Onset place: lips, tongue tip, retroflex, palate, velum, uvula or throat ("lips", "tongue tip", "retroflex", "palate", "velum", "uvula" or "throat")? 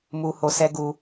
lips